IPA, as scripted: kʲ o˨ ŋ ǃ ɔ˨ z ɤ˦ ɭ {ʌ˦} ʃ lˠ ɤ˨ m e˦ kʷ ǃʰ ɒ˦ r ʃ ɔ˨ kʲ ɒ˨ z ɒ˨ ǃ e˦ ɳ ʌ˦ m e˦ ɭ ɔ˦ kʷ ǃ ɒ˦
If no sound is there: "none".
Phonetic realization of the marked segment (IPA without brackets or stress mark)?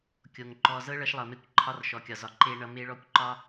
ʌ˦